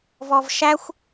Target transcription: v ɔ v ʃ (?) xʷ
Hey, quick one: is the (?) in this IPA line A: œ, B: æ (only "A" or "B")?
B